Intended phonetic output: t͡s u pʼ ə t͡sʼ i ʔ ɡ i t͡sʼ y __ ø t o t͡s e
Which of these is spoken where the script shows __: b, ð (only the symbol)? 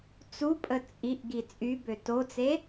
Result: b